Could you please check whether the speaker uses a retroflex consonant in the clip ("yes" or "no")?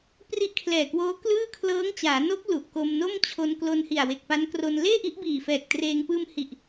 no